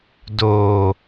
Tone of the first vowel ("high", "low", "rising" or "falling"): low